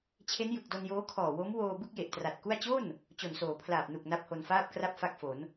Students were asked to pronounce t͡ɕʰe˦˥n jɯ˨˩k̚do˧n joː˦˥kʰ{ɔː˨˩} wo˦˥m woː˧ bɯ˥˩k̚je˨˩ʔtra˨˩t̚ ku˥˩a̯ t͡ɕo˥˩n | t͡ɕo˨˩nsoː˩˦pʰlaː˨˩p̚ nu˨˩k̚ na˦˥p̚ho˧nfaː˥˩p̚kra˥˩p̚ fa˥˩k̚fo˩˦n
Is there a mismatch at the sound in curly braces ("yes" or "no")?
no